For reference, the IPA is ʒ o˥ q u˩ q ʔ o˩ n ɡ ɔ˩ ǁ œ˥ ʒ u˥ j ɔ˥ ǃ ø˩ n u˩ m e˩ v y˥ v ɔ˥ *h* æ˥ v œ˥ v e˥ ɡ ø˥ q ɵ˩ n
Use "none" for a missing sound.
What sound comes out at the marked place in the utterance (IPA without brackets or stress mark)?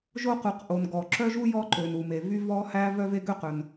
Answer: h